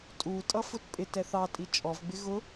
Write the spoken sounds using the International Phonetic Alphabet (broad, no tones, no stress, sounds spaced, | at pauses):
tʼ u tʼ ʌ f ʊ t pʼ ɪ t ɛ θ ɑ tʼ i t͡ʃʼ ɔ v ɡ͡b ɪ ɣ ʊ